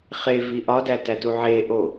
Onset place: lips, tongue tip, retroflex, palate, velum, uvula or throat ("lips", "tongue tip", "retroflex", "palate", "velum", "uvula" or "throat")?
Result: uvula